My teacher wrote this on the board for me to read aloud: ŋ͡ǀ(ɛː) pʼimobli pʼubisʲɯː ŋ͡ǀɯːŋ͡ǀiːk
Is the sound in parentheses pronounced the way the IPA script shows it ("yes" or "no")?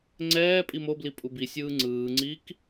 yes